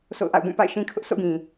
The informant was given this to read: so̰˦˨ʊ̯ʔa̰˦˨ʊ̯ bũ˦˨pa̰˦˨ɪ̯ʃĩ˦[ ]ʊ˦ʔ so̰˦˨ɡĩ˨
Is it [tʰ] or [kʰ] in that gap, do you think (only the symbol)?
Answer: kʰ